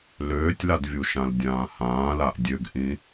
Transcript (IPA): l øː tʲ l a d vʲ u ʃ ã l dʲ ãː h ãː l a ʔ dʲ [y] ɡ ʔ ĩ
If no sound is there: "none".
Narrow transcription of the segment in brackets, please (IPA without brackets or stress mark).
ø